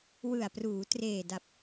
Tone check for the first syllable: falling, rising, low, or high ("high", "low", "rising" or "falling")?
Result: low